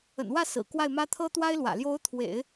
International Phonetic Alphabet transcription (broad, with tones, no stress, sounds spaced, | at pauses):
ə̰˨˩ n w ä˥˩ s ɹ̩˨˩ k w a˥˩ ɪ̯ m ä˥ t̪ʰ ɤ˥ t̪ w a˥ ɪ̯ l w ä̰˨˩ l j o˧˥ ʊ̯ t̪ʰ w ḛ˨˩˦ ɪ̯